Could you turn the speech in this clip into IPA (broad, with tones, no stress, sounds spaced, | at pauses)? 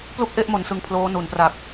p l u˥˩ k̚ ʔ e˥˩ ʔ m o˨˩ n s ɯ˨˩ ŋ pʰ l oː˦˥ n u˩˦ n p r a˨˩ k̚